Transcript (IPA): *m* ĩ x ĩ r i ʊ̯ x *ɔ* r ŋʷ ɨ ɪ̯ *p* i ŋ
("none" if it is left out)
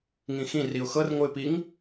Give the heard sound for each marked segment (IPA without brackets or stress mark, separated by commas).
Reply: ŋ, ɤ, p